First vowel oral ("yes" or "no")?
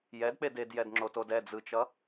yes